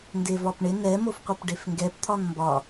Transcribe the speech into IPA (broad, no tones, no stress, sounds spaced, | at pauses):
n d e v ɒ p ɳ ɪ n ɛ m o f qʷ ɛ p ɖ e f ŋ ɡ ɛ p t̪ʰ ɒ n m b ɒ